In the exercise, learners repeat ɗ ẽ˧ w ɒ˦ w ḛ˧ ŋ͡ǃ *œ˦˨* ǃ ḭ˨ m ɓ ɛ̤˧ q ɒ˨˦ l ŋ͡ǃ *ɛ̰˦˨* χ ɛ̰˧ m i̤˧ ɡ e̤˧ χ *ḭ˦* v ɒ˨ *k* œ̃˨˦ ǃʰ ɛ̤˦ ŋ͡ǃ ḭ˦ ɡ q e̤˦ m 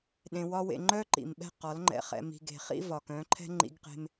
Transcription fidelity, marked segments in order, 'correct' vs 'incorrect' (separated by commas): incorrect, incorrect, correct, correct